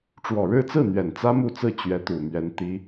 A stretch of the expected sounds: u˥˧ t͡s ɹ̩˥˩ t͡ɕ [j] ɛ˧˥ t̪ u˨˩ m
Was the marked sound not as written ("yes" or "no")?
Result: yes